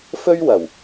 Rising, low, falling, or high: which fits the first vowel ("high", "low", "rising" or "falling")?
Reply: high